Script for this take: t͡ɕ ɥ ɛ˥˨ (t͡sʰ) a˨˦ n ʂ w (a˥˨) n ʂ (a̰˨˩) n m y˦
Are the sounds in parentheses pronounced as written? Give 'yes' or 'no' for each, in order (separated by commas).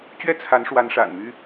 yes, no, yes